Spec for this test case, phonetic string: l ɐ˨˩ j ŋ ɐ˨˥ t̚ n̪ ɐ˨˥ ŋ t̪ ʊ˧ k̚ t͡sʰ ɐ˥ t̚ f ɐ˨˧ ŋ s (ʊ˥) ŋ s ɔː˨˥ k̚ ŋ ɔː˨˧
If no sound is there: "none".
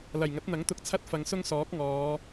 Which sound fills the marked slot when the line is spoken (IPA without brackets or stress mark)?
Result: ʊ˥